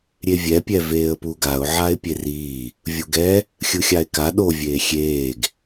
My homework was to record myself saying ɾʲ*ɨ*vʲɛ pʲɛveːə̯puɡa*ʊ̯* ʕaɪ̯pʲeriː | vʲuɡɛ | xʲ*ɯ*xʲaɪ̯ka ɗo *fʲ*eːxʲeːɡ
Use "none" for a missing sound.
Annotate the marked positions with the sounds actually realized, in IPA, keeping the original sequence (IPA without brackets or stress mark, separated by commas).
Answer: e, ʊ̯, ɯ, vʲ